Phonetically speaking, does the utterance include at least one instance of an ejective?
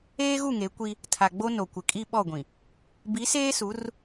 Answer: yes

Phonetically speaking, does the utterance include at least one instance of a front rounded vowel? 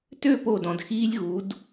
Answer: yes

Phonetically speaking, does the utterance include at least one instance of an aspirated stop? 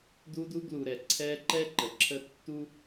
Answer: yes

